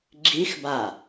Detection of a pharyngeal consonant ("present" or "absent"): absent